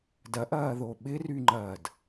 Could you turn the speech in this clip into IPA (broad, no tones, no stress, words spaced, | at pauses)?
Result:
dɐʔɐːðo ɓɪryŋ͡ǃɐːd